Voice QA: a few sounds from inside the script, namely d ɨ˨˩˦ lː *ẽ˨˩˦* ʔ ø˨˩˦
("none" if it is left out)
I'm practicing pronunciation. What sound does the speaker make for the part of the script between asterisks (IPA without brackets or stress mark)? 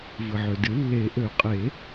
e˨˩˦